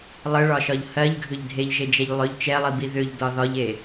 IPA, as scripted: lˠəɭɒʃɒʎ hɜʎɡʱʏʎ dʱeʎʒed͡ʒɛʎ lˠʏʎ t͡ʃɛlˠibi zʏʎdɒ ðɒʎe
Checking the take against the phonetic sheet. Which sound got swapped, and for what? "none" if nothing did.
z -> ð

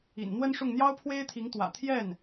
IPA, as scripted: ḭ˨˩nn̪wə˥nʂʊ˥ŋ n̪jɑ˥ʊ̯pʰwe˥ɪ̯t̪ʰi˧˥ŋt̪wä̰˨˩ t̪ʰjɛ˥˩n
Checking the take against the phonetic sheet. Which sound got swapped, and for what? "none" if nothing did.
ʊ˥ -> ʊ˥˩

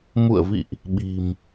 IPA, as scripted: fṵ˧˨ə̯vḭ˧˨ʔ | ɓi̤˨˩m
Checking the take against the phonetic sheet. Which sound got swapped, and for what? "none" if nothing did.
f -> m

